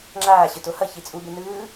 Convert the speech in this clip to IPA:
ŋ͡ǁ aː ɕ ɯ t o h ʌ ç i t͡sʼ u b e n ɯː

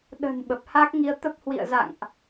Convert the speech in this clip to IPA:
ɗ ə̤˨˩ n ɓ ə˨˩ p̚ h a˦˥ k̚ ŋ i˧ ə̯ t̪ ə˦˥ p̚ h w ḭ˧˨ ə̯ z a̰˧˨ ŋ ʔ

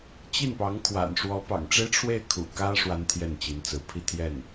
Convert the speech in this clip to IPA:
t͡ɕ i˥˩ n p ɑ˧˥ ŋ kʰ w a̰˨˩ n ʂ w ɔ˧˥ p ɑ̰˨˩ ŋ ʈ͡ʂ e˥ ɪ̯ ʈ͡ʂʰ w e˥˩ ɪ̯ kʰ ṵ˨˩ k ä˥ ʂ w a˥ n t̪ʰ j ɛ˥˩ n t͡ɕ i˧˥ n t͡s ɹ̩˧˥ pʰ i˥˧ t̪ʰ j ɛ˥˩ n

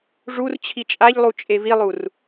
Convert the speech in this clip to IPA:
ʐ u r t͡ɕʰ i t͡ʃʼ a ʎ lˠ u t͡ʃʼ e v i lˠ u r

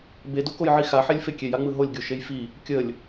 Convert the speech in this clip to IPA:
b e d o k o j ʕ i x a ħ e lʲ f e kʲ e j a ŋ͡m ɯ ɦ o lʲ ɡʲ o ʃ e j f i | kʲ ə lʲ

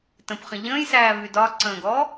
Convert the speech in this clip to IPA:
t ə̃ p χ ə̃ ʎ ə̃ː j s æː v y d ɒ ǀ ə̃ː ɡ ɔː

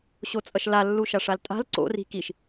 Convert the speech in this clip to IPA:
ɕ o t͡sʼ ʌ ʃ l a lː u ʃ a ʂ a l tʼ a̤ l ǀ o̰ r i̤ k i ʃ

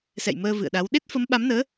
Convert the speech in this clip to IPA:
s ɛ̰˧˨ j m əː˧ v ɨ̰˧˨ ə̯ ɗ a˨˦ w ɗ e˦˥ t̚ f ə˨˦ m ɓ a˨˦ m n əː˨˦

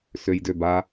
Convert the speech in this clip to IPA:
s ø j d ø b a

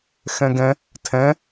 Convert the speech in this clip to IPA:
x ɛ̃ ɡ ɛ̃ | tʰ ɛ̃

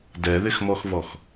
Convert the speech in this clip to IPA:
d ɛ ð ɪ x m ɔ x v ɔ x

